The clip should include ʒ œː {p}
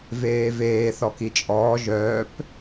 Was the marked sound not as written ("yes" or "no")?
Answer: no